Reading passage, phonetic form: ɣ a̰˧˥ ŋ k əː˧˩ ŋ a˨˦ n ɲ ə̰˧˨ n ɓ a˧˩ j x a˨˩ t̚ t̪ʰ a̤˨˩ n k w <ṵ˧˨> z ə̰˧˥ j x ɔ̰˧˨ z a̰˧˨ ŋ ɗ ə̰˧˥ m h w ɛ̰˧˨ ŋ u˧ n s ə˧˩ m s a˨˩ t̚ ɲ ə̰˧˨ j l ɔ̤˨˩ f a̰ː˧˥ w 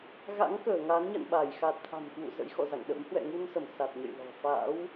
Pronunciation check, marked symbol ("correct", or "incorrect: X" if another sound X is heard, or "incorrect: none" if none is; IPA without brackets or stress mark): correct